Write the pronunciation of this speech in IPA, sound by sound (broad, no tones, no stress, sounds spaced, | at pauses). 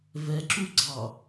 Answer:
v ɛ ǁ u ɡ͡ǀ ɑ